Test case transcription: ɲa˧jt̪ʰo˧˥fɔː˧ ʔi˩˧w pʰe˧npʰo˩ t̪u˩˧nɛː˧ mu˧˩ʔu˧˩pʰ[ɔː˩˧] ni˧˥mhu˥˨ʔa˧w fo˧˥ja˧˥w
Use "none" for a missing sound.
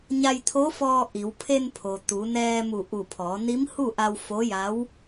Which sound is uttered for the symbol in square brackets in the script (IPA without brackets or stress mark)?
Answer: ɔː˩˧